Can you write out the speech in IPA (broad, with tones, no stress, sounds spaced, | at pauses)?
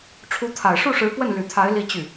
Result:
ʈ͡ʂʰ u˧˥ t̪ʰ a˨˩ ɪ̯ ʂ u˥˩ ʂ ɻ̩˧˥ p w ə˥˩ n l y˨˩ t̪ʰ a˧˥ ɪ̯ l i˥˧ t͡ɕ y˥˩